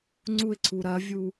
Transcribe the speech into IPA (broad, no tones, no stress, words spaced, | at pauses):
ŋ͡ǀuɪ̯ǀʰu ɾɐvʲu